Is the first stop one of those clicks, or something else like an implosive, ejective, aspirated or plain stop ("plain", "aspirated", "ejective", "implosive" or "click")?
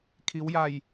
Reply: aspirated